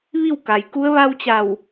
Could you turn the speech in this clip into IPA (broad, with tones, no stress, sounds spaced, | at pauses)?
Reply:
ʋ i˥˨ w k a˩ j k u˧˥ ə̯ ʋ a˧ w t͡ɕ a˧˩ w